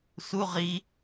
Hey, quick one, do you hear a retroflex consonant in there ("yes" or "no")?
no